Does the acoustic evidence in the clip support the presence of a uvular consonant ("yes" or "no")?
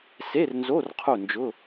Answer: yes